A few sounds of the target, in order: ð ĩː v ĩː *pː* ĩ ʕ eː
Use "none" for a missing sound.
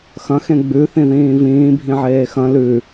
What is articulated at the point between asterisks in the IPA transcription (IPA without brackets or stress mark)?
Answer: bʱ